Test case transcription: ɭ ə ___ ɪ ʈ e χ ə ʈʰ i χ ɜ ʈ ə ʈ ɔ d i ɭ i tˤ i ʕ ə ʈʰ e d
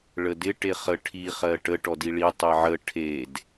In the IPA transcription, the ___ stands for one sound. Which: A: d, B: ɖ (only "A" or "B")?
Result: A